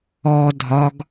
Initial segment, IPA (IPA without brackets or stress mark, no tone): ɔ